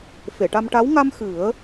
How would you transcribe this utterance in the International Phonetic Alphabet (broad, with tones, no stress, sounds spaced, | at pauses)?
f e˨˩˨ ʈ a˧ m ʈ a˧˥ w ŋ a˧ m x ɨ˨˩˦ ə̯